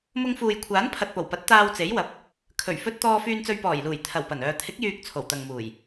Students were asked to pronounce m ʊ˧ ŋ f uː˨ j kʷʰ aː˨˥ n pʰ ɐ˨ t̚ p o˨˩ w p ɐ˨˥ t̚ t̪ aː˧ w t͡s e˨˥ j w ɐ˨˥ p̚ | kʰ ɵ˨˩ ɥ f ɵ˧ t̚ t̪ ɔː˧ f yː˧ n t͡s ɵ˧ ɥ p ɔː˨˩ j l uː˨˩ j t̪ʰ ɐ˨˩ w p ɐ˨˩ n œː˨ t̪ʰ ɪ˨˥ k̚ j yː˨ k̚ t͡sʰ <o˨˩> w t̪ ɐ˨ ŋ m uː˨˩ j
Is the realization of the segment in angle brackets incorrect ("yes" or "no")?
no